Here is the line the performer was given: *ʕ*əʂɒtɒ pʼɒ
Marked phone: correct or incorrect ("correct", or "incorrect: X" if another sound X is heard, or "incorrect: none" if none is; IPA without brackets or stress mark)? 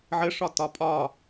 correct